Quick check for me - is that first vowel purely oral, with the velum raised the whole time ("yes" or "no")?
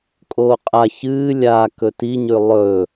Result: yes